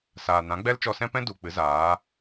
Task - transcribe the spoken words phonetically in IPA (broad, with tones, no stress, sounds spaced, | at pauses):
s aː˨ n ã˨˦ ɡ͡b ɛ˦ l t͡ʃ ɔ˧ s ɛ̃˦ p ɛ̃˦ d u˨ k͡p ɨ˨˦ z aː˨˦